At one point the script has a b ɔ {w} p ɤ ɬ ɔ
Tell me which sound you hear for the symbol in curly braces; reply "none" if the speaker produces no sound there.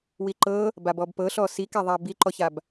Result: b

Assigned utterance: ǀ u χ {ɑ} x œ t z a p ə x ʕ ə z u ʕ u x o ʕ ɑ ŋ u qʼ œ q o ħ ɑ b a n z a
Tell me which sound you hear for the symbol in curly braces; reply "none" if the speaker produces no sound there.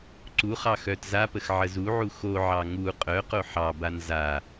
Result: ɑ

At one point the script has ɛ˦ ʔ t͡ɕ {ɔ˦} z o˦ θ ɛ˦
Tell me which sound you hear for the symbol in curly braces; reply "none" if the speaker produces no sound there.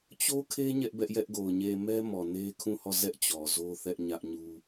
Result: ɔ˨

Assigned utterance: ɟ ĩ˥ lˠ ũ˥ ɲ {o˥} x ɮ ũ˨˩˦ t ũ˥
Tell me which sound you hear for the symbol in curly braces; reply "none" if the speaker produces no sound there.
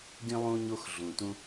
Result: o˥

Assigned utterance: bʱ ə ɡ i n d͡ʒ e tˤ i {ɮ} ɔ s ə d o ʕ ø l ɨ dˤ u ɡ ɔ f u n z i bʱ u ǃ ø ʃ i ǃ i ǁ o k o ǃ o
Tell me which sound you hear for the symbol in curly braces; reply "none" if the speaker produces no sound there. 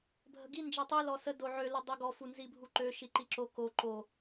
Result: l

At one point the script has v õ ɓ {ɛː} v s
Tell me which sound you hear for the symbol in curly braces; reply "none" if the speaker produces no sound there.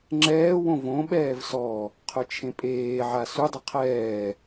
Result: ɛː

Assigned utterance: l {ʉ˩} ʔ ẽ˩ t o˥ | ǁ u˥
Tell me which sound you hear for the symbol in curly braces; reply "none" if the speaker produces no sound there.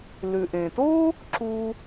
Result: ʉ˩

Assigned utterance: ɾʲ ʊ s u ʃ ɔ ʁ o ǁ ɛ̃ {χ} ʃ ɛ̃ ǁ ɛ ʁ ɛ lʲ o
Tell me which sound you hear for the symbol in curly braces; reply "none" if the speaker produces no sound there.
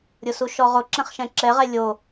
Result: χ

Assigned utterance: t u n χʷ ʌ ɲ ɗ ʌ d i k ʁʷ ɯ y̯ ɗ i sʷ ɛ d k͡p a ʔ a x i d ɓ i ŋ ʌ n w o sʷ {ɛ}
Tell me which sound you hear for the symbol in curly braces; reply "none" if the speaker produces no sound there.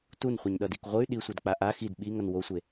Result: e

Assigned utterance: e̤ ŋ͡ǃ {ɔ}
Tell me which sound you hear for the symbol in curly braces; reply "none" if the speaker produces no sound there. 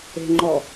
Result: ɔ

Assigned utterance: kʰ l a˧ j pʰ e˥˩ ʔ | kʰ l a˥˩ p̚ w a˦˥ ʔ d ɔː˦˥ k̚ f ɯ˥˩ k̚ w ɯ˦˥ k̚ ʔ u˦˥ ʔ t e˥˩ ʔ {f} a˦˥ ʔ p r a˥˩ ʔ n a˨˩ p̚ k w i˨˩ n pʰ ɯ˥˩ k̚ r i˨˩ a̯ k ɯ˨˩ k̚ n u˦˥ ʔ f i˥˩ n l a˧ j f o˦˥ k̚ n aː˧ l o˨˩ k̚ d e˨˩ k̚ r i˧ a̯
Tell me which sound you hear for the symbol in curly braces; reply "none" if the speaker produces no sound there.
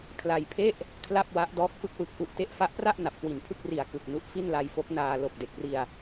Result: f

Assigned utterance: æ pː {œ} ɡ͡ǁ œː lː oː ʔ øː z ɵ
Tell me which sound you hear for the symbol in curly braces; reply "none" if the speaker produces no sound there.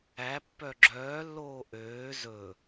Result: œ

